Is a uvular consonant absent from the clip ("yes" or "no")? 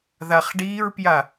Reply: no